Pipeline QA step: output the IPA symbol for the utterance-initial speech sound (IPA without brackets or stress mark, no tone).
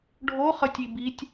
ɖʱ